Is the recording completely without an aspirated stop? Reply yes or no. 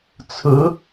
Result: no